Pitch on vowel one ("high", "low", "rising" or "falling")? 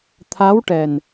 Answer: rising